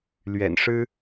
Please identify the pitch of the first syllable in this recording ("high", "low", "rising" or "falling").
low